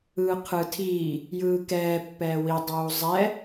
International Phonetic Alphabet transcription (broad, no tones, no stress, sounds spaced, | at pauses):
ɯː qʰ ɯ tʰ iː | j ɯː k ɛː pː ɛː w i dˤ uː zˤ ɛ